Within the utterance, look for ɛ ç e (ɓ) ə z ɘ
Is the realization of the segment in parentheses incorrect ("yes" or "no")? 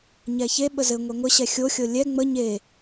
no